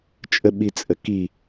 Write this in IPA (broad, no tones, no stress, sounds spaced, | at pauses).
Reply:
t͡ʃʼ ə ɓ i t͡sʼ ə k i